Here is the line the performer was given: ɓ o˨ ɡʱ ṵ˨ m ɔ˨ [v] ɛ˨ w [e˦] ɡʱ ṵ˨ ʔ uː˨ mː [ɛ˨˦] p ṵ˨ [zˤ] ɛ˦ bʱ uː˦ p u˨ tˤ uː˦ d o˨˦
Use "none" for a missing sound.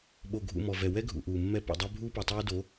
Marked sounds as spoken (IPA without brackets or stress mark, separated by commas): v, ɛ˦, ɛ˦, dˤ